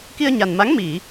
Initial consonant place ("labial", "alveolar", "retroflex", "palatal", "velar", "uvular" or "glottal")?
velar